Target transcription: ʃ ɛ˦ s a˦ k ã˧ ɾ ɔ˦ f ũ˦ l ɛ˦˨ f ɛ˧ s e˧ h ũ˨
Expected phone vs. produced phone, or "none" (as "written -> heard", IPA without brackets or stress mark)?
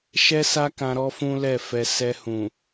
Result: e˧ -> ɛ˧